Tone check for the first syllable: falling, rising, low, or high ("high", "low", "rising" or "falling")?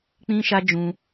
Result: high